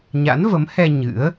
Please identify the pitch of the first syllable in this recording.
rising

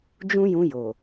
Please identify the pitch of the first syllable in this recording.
high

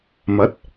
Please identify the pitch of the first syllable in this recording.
rising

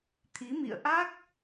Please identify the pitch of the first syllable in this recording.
rising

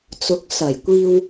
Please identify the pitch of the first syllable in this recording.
rising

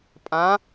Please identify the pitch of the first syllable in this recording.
rising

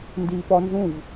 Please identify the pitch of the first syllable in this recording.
high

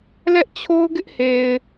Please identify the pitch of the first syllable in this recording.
high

